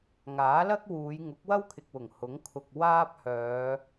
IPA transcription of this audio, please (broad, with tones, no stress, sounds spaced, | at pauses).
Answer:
ŋ aː˨˥ l ɐ˥ k̚ w uː˨˧ j ŋ ʊ˨˥ k̚ w ɐ˥ w kʰ ɪ˨ k̚ w ʊ˨˩ ŋ h ʊ˨˥ ŋ kʰ ʊ˨ k̚ w aː˥ p̚ h œː˨˧